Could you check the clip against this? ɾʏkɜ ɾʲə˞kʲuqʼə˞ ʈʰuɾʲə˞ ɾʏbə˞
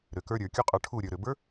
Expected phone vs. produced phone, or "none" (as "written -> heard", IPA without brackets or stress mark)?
ɜ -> ə˞